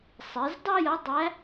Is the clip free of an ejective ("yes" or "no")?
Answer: yes